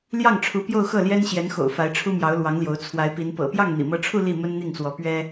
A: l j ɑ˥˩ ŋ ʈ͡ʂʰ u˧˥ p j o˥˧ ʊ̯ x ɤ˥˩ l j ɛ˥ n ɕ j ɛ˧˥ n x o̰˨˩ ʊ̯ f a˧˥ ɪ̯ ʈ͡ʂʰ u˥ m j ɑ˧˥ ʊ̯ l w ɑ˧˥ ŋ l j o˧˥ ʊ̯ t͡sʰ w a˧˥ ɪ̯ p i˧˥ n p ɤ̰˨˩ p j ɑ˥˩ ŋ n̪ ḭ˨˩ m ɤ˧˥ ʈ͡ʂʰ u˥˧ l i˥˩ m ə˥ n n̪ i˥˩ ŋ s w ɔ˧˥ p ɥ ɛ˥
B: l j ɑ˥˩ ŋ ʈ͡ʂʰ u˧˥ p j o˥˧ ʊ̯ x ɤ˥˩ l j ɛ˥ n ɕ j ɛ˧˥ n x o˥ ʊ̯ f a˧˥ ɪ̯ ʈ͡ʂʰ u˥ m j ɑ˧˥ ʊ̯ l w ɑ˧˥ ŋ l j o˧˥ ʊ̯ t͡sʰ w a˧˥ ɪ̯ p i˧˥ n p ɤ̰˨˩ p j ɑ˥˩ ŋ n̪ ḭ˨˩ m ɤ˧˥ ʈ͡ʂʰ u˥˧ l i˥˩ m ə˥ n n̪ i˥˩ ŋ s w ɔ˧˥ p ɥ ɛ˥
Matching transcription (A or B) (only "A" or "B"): A